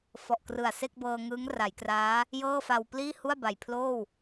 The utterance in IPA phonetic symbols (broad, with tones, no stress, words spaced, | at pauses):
fɔ˨˩ʔkrɯ˨˩a̯ se˥˩k̚bɤː˧ŋɯː˦˥ŋ ra˩˦jkraː˦˥ | jɤː˥˩fa˧w pliː˥˩ hu˥˩a̯ba˨˩jpʰloː˥˩w